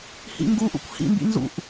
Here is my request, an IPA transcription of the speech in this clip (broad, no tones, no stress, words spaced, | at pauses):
hḭŋɡuʔṵkʷ hḭmbḭ nzṵʔ